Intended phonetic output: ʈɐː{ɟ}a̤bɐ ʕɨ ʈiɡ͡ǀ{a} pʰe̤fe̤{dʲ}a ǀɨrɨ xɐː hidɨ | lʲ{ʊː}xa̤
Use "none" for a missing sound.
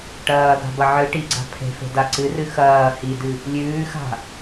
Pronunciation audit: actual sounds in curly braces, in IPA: ɡ, a̤, d, ʉː

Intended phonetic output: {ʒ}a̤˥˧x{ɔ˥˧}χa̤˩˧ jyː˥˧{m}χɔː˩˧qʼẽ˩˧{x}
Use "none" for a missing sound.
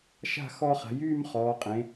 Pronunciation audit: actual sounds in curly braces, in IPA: ʃ, ɔ˥˧, m, none

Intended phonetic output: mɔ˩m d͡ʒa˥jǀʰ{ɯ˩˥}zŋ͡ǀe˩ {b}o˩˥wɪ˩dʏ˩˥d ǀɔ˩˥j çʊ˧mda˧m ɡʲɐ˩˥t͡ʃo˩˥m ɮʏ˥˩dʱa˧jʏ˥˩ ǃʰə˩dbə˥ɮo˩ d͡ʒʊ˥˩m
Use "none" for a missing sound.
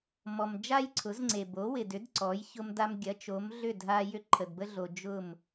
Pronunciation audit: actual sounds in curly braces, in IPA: ʊ˩˥, b

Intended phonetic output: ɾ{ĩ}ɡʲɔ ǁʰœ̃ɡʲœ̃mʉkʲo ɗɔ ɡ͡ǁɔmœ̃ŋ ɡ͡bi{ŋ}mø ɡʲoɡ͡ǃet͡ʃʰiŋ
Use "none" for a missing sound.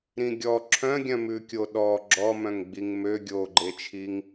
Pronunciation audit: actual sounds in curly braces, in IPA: ĩ, ŋ

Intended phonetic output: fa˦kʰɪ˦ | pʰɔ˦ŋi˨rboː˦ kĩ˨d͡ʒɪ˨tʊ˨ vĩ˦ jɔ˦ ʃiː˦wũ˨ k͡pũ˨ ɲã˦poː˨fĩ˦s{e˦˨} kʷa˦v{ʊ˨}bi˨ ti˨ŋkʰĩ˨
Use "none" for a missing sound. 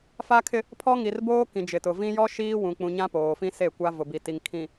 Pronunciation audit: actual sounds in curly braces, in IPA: e˦˨, ʊ˨

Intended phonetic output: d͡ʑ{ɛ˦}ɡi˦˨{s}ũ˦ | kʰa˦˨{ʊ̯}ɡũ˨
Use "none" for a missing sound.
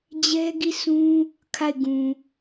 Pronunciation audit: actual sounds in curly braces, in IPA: ɛ˦, s, ɪ̯

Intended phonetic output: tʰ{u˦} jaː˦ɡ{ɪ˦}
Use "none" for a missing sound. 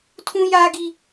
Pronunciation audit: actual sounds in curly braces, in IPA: ũ˦, i˦

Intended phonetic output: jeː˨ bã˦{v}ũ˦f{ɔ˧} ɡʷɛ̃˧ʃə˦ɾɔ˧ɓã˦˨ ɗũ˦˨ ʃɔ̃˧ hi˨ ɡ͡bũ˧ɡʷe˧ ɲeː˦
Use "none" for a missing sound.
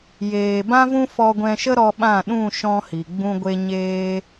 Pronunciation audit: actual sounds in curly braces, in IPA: v, ɔ˧

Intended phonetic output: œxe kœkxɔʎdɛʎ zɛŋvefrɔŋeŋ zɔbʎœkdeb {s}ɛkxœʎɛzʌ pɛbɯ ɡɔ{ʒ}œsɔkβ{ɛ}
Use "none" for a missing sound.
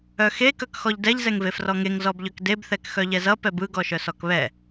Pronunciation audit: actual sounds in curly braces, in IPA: θ, ʃ, ɛ

